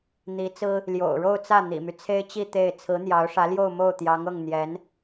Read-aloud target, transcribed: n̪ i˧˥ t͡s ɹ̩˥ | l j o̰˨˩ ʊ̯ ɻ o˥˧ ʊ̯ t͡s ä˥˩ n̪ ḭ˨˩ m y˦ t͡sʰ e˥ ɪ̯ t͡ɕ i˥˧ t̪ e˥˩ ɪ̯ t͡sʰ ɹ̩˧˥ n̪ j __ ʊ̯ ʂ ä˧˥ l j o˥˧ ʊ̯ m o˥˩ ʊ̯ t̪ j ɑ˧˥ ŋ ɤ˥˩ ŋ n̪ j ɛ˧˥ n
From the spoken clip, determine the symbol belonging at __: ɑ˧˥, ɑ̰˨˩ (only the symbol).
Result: ɑ˧˥